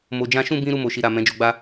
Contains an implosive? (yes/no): no